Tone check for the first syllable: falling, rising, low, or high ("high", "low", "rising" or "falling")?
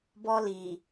high